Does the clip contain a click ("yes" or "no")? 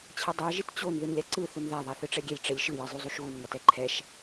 yes